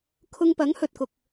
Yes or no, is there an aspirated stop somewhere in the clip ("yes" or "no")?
yes